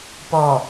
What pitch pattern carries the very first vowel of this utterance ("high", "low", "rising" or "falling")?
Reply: low